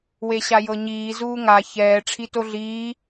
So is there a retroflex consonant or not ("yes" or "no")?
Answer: yes